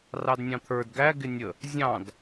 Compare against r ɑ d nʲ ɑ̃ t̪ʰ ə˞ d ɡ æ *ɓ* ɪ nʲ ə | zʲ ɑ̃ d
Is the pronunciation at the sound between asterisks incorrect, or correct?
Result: incorrect